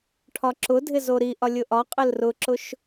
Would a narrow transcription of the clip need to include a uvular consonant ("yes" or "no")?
yes